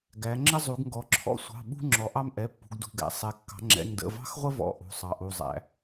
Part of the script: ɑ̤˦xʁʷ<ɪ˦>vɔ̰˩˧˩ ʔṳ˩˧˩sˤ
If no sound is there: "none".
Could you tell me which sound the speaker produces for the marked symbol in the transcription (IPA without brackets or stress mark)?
ə˦